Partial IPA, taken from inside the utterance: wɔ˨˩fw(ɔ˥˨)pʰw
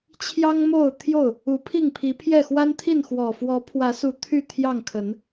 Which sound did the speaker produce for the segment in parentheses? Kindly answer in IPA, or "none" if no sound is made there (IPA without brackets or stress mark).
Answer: ɔ˨˦